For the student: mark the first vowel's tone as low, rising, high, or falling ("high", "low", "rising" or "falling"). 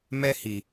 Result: high